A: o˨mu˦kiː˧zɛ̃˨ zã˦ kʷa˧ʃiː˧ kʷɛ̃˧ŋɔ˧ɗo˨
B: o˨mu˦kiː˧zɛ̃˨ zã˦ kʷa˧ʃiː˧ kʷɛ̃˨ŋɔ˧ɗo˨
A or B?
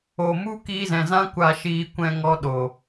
A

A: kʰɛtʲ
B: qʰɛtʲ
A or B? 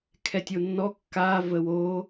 A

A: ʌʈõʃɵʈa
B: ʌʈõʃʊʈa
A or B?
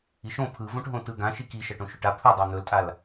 A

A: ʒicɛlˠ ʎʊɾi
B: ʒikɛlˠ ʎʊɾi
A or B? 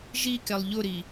B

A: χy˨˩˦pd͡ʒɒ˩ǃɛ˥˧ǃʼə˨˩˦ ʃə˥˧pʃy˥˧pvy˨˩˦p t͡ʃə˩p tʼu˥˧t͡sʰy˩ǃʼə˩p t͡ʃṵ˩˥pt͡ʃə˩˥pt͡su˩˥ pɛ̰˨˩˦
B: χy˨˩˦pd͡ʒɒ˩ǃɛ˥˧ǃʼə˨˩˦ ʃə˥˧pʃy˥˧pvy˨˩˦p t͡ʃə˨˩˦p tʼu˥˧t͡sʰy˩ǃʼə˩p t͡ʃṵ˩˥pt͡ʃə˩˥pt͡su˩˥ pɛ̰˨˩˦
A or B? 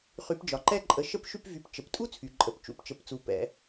A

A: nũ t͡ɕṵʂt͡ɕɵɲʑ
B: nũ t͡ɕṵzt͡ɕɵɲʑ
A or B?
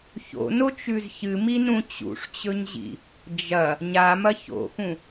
A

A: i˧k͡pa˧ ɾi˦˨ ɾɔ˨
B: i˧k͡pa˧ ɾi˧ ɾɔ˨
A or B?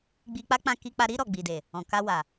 B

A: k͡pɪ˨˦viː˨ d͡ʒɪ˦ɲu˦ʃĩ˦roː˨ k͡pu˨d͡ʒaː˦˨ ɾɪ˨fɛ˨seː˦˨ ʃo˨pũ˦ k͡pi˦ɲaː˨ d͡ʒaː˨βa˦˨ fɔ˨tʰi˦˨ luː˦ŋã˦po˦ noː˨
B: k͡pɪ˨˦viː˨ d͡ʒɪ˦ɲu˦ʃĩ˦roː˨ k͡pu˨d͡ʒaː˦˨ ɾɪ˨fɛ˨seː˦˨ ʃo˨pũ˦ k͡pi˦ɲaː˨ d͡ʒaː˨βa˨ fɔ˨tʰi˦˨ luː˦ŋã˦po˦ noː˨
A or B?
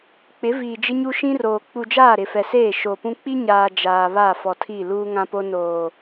A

